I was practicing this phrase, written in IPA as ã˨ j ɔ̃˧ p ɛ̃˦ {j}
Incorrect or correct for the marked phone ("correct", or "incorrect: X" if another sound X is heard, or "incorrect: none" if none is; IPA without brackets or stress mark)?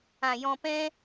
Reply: incorrect: none